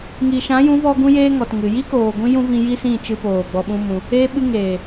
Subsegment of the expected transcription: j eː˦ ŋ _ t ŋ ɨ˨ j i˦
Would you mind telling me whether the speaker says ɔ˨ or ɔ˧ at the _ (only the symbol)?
ɔ˨